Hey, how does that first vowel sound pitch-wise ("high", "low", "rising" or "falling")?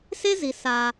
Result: high